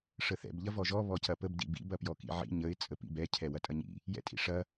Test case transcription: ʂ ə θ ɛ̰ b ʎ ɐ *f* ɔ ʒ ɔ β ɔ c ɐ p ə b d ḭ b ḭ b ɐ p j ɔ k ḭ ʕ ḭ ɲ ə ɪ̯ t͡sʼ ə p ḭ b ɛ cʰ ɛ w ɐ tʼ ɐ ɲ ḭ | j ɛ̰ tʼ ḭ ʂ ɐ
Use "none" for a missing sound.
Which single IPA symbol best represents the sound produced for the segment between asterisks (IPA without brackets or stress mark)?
v